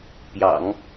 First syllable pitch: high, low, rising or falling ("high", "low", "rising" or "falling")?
low